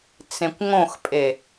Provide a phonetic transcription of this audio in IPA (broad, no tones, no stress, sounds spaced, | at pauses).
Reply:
t͡s ẽ kʷ ŋ õ x pʼ e